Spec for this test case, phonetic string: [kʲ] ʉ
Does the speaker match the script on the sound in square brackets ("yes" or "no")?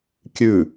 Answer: yes